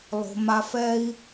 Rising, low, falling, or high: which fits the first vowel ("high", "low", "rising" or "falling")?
low